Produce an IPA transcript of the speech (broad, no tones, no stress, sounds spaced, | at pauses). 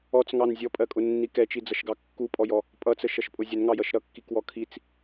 ɔ t͡s ŋ ɑ n zʲ ɔ pʼ ɜ kʼ ʊ nː i k ɛ t͡ʃ i d͡z ʌ ʃ ɡ ɑ kː u pʼ ɔ j ɔ | pʼ ʌ t͡s ə ʃ ʌ ʃ pʼ ʊ zʲ ə n ŋ ɑ j ʌ ʃ ɾ ʌ kː i k w ɔ kʰ i t͡s